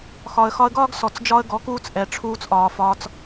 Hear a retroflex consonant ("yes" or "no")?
yes